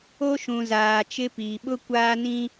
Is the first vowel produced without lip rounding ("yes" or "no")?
no